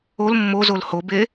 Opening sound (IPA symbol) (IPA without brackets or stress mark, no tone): o